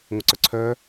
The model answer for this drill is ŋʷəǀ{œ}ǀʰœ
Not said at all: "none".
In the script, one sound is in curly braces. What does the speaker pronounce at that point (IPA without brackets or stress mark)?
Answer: œ